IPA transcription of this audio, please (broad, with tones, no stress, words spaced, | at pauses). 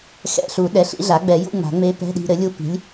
xɛ̰˧˥˧ɬu˨˩˦ ɗɛ˩˥ɬḭ˩˥ ɮa˩˥ɡ͡bɛ˨˩˦jṵ˧˥˧ ŋ͡ma̤˨˩˦ŋ͡me˧˥pɛ̤˧˥˧ɗi̤˧ ɾɘ˩˥lʲu˧˥ pi̤˩˥lʲ